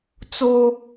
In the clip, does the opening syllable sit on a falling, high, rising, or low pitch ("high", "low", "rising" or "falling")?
high